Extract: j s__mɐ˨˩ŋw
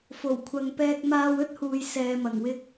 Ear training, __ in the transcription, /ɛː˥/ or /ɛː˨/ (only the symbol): ɛː˨